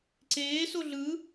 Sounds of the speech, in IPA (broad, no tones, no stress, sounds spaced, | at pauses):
ǀ eː s o ɮ ɯ